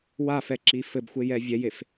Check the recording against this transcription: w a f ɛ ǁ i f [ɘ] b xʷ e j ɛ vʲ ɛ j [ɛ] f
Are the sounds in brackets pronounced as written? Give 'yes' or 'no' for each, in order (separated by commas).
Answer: yes, no